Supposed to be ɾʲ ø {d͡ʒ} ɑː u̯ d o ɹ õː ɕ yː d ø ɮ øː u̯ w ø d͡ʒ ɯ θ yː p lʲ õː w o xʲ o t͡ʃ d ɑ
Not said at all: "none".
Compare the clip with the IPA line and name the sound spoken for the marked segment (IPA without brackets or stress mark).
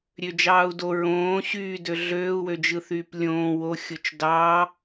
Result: d͡ʒ